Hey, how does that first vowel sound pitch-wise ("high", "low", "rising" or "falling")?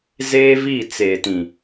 high